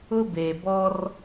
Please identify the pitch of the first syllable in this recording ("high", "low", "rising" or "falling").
high